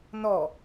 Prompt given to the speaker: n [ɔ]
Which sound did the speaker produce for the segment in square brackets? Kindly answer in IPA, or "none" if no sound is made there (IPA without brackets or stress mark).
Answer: ɔ